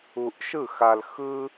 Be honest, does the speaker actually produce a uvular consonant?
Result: no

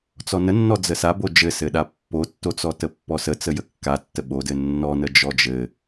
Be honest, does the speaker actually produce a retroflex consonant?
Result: no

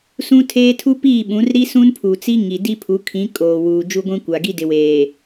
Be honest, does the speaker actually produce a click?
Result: no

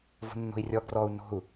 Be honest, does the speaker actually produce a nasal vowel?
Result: no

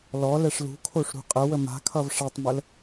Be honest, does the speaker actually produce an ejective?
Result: yes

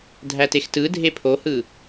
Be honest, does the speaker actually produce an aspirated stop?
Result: yes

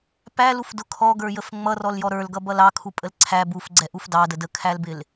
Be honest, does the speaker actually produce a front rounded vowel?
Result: no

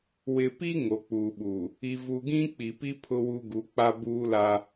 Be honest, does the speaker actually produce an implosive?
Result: yes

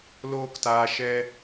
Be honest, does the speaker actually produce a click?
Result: no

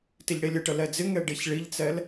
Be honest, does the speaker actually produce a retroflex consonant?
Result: yes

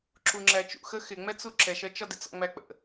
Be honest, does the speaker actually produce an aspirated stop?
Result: no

